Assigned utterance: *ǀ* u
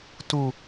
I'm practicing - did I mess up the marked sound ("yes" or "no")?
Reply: yes